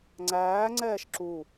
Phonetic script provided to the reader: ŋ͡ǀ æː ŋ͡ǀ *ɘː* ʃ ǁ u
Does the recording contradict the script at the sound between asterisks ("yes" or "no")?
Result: yes